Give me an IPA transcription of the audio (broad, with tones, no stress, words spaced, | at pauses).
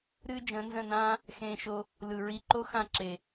ɾɨː˦d͡ʒə̃ː˨˦nzə̃˦˨nãː˦ | xẽː˧ʃo˧ | lɯ˨ɹi˧ǃo˦xã˦˨ ǁe˨